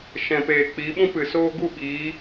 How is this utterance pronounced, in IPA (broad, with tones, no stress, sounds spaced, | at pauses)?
ʃ ɛ̃˨ p eː˨ k͡p iː˨˦ ɓ ũ˦ p ɨ˨ s oː˦ ɡ u˦˨ ɓ iː˨˦